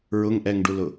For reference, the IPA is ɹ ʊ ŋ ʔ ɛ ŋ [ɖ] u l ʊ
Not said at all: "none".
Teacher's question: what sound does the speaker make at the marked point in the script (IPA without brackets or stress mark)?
ɖ